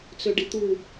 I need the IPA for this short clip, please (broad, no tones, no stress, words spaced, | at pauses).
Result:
t͡søɖit̪u